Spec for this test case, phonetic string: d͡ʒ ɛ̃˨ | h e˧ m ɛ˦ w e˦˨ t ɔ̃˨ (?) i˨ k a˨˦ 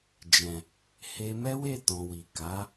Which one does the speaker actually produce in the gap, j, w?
w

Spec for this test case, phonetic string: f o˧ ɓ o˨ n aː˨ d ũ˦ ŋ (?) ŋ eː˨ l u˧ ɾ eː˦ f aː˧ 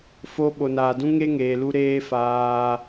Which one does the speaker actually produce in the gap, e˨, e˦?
e˦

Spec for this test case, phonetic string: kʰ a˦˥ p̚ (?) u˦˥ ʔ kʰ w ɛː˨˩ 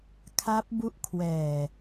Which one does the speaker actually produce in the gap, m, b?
b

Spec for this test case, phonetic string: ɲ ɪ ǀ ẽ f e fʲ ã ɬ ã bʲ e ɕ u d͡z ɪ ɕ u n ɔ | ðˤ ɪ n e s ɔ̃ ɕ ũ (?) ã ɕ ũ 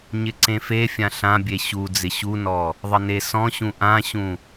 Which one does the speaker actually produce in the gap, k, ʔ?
ʔ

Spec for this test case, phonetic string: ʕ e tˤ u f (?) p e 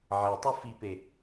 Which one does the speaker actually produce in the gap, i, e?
i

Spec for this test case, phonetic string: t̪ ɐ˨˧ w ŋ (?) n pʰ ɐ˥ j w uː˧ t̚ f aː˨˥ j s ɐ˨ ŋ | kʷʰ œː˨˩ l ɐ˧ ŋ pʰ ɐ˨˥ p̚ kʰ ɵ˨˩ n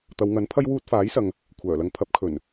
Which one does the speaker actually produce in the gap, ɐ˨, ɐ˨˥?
ɐ˨˥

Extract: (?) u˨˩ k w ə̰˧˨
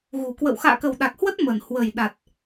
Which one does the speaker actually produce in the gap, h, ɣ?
ɣ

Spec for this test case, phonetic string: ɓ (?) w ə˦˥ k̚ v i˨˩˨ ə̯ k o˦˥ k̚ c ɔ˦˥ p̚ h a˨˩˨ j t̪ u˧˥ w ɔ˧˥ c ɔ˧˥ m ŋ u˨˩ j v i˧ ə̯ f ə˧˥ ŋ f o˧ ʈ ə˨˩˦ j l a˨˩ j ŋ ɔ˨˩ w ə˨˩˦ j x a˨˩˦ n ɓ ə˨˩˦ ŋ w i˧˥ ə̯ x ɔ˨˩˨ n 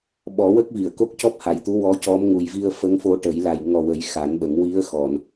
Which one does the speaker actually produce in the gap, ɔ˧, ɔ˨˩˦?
ɔ˨˩˦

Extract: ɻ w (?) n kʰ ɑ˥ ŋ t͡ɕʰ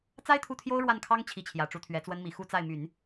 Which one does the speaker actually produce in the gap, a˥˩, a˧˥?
a˥˩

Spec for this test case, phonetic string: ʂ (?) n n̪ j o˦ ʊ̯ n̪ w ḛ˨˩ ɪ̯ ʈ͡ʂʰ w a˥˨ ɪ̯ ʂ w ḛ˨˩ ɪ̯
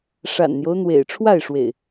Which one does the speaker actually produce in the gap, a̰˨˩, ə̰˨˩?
a̰˨˩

